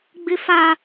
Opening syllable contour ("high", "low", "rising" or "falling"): high